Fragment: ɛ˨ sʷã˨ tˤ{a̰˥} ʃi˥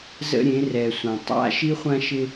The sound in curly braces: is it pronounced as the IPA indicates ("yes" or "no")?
yes